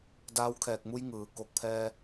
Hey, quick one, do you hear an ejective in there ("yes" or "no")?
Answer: no